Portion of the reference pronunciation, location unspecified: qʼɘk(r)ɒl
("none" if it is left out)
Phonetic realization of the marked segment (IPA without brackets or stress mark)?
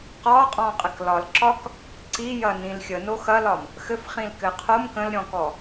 l